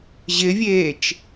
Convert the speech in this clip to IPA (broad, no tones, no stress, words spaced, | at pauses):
ʑɪvʲeːt͡ʃ